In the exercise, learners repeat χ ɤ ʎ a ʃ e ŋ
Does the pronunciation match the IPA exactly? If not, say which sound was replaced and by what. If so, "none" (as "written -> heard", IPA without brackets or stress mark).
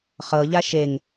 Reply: none